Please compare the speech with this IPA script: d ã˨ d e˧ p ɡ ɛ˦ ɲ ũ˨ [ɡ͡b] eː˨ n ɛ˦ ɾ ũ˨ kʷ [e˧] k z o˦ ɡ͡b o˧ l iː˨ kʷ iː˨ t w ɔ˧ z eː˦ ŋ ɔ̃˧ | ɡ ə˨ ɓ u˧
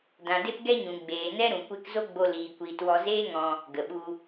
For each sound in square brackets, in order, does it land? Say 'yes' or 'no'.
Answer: yes, yes

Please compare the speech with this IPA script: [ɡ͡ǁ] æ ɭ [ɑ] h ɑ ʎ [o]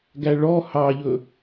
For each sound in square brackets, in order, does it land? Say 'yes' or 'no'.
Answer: no, no, no

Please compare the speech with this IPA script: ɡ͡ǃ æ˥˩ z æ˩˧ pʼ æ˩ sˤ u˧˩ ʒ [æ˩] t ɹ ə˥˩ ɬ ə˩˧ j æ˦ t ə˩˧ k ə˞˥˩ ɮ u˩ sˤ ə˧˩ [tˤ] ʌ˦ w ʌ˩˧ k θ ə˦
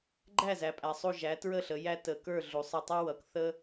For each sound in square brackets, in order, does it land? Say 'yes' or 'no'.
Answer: no, yes

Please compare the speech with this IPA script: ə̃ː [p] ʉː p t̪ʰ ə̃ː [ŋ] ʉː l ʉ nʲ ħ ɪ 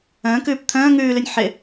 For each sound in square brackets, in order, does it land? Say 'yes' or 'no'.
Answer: no, yes

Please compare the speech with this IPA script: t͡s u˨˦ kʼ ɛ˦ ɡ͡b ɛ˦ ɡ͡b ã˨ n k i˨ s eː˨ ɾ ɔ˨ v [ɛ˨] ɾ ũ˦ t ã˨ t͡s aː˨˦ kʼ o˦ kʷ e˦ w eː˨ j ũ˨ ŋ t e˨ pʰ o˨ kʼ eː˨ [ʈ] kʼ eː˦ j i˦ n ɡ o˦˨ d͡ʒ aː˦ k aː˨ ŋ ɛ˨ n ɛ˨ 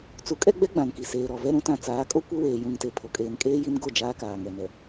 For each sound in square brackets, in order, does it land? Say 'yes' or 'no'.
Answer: no, no

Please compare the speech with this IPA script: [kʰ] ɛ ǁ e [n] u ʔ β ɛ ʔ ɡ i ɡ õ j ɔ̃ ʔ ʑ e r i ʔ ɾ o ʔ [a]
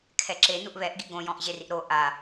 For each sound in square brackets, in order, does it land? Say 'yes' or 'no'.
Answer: yes, yes, yes

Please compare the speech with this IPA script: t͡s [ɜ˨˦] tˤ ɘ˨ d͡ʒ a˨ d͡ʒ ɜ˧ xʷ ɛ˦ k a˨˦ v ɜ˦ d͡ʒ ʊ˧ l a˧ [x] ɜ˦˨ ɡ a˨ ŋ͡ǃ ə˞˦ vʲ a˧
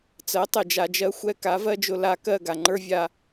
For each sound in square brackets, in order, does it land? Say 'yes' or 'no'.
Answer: yes, no

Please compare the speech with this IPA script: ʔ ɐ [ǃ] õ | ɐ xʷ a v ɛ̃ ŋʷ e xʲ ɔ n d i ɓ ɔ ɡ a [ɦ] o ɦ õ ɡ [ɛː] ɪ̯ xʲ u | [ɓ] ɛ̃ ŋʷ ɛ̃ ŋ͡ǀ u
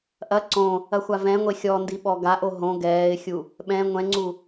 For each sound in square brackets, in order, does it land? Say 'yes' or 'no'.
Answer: no, no, yes, yes

